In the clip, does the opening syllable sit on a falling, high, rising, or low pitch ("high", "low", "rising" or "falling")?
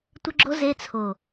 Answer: high